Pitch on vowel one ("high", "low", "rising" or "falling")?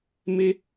high